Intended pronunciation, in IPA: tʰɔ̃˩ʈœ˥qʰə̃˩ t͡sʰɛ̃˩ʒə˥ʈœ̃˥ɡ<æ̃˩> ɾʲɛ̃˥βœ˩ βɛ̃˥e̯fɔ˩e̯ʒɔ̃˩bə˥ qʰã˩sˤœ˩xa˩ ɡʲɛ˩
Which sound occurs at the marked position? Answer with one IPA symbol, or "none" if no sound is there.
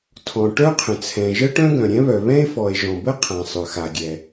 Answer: œ̃˩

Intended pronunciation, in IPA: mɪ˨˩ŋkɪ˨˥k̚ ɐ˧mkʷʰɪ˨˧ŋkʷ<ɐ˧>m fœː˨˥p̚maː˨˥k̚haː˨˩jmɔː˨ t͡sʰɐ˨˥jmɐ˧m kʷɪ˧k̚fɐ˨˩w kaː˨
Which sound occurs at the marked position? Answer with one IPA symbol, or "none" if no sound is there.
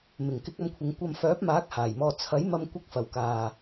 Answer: ɐ˧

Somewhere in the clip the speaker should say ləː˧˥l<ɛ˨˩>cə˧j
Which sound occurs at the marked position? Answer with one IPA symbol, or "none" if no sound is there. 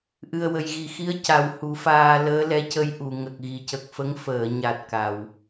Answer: ɛ˧˥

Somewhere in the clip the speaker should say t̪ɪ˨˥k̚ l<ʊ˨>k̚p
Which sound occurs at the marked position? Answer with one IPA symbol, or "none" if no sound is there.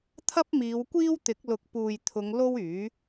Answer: ʊ˨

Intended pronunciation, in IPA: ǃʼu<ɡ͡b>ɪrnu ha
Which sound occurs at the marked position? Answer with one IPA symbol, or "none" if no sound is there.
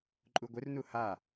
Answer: ɡʷ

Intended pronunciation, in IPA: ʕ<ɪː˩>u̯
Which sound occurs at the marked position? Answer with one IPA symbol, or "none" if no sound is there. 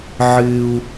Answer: ɪː˩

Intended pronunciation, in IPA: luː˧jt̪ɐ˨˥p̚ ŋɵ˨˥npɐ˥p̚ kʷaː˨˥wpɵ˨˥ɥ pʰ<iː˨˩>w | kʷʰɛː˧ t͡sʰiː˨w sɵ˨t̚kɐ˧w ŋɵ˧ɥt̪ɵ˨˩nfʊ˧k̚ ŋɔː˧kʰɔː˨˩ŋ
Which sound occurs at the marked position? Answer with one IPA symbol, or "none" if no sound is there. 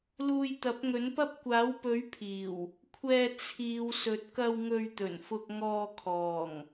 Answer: iː˨˩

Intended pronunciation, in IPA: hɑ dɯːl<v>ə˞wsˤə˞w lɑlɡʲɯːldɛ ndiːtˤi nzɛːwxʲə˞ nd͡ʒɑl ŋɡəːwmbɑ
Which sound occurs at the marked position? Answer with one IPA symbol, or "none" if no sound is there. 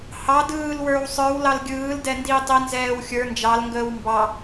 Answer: w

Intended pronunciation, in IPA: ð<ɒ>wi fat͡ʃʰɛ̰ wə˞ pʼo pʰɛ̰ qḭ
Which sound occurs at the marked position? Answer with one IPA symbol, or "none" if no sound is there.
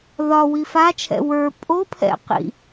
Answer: ɒ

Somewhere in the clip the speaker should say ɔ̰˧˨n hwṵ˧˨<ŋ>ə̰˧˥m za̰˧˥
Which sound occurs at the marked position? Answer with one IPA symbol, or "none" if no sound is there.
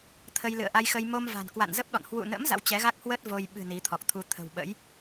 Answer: n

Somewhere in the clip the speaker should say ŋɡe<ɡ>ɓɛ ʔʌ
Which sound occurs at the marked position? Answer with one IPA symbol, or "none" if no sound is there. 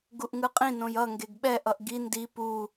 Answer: ɡ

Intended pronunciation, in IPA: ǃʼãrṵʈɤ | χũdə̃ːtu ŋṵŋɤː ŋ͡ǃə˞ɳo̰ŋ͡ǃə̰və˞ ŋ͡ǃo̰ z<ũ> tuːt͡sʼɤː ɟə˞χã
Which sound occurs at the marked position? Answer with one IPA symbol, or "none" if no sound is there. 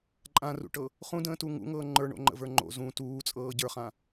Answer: ũ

